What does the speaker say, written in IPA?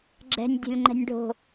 ɡ͡ǁ ɛ̤ nʲ dʲ o̤ lʲ ŋ͡ǃ ɛ̤ nʲ ɖʱ o̤

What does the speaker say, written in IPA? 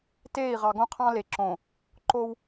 t eː˦˨ i̯ ʁ ɑ˨ ɡ õ˦ qʰ ɑ̃˦ l e˨ ǁ õ˨ | ǃ o˦ w

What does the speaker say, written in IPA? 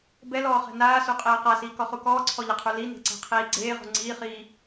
b ɛ l ɔː χ ɛ̤ n aː s u qʼ eː q a s iː k ɔ χ u k ɔː ǀʰ ɔ ʎ ɘ qʰ u l i n e̤ ǀ ɛ̤ qʰ iː ɡ͡ǀ eː ʁ ṳ ŋ͡ǀ iː χ iː

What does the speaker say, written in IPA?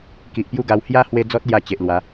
k i˨ ʔ p j u˥˧ ɡ a˧ w h j a˦ h w e˦ d͡z ɔ˦ t̚ l j a˧ t͡ɕ e˨ ʔ l w a˨˦

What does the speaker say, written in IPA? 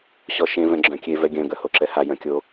ɕ ɔ ʃ ẽ v ɛ̃ ɡ͡ǁ œ̃ kʲ e v ɛ ɡʲ œ̃ ɡ œ h o ǁ ɛ h a j œ̃ kʲ o

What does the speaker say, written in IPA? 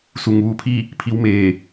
s u˩ ŋ ʋ uː˧˩ pʰ i˥˨ | pʰ i˧ w m eː˧˩

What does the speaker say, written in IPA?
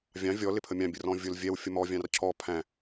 vʲ ɑ̃ vʲ ɔ l ɪ pʰ ə mʲ ɑ̃ bʲ ə r ɔ̃ vʲ ʊ l vʲ ɛ w fʲ ə m ɔ vʲ ɑ̃ r cʰ ɔ pʰ æ̃

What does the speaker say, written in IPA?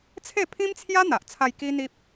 t͡sʰ e˥˧ pʰ ĩ˦ m t͡sʰ j a˦ n̪ a˨ ʔ t͡sʰ a˧ j k i˦ n̪ i˦ p̚

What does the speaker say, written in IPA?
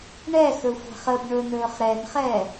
ɳ ɛ x ɵ xʷ ɛ̤ χ ə b ɳ ɵ n ɵː χ ɾ ɛ n χ ɛ

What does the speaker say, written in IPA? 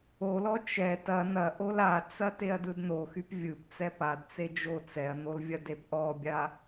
o l ɔ t͡ʃ ɛ t ɐ n̪ ɐ ʔ o l a t͡s ɐ t e ɐ̯ d ɯ d n̪ o x y p vʲ ɯ p t͡s ɛ p a d t͡s e d͡ʒ o t͡s ɛ ɐ̯ n̪ o l vʲ ɐ d e p ʔ ɔ bʲ a

